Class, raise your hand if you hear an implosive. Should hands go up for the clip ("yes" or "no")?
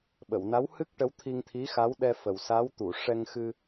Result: yes